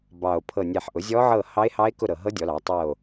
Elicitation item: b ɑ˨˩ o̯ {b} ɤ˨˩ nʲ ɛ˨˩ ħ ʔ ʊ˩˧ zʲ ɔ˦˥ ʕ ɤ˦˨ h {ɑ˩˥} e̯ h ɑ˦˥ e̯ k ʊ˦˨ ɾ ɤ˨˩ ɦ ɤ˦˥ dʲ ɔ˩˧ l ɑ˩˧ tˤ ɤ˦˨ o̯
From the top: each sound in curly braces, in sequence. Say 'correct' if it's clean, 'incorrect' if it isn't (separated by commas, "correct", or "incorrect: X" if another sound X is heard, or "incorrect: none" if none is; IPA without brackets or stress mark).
incorrect: pʰ, incorrect: ɑ˦˥